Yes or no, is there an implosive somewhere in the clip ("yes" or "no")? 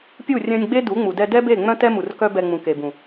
no